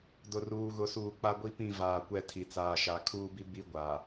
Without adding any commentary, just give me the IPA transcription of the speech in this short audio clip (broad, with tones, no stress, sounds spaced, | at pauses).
d ʊ˨ r uː˨ ɣ ʊ˨ s uː˨ k͡p a˦ ɡʷ i˦ p ĩ˦˨ v aː˨ kʷ ɛ˦˨ tʰ i˨ t͡s aː˨ ʃ a˨ kʰ uː˦ b i˦ b i˦ ɡʷ a˨